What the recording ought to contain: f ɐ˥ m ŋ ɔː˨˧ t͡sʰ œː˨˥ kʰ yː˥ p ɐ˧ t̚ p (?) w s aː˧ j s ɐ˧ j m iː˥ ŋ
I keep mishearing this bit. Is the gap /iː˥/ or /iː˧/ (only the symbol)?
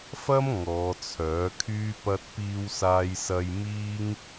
iː˧